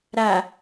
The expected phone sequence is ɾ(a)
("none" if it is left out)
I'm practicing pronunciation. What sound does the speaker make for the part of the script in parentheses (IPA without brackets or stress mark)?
a